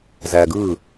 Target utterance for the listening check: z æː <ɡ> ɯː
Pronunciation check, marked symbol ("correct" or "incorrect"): correct